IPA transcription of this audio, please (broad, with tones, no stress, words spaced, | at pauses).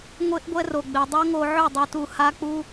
ŋʷe˦ʔɡʷɛ˦ro˨ ɡ͡be˨dˤo˦ ŋo˧ ʕʉ˦˨dˤu˧tu˧ ha˦k͡pu˦